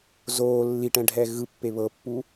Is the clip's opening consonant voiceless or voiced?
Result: voiced